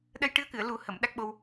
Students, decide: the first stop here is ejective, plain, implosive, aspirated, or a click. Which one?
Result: implosive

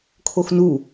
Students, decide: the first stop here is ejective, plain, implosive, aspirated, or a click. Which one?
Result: aspirated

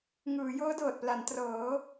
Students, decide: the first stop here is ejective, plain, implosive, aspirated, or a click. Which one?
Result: plain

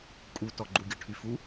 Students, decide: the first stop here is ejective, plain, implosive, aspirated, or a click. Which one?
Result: ejective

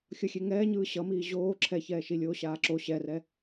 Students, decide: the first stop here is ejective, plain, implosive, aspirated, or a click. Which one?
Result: click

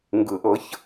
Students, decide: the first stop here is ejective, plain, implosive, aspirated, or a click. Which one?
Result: plain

